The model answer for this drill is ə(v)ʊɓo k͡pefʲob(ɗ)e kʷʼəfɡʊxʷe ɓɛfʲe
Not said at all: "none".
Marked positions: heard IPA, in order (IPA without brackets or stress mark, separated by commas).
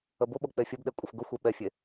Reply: b, ɗ